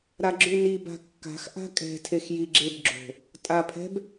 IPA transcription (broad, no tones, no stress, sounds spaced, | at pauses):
ɾ a ɡ͡ǁ ʉ n i b a̤ kː a̤ x ʔ a̤ kʼ ɛ̤ tʰ e x j i ɡ͡ǁ e b ɡ͡ǁ o̤ | tʼ a pʰ ɛ̤ b